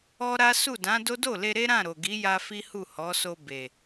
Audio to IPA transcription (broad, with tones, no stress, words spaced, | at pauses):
ɔ˦ɾa˦ su˦˨dã˨˦do˦ do˦˨le˧ ɾe˦ɾã˦˨ ɾo˨ɡi˨˦ja˧ fi˦hu˦˨ hɔ˨˦so˧ be˨